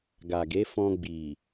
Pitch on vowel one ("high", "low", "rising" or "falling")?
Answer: low